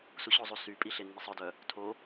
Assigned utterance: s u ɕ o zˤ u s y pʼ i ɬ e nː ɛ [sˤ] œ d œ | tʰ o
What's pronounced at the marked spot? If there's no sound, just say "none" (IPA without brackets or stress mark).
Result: sˤ